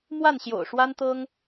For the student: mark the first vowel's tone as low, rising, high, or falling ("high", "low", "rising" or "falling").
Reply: falling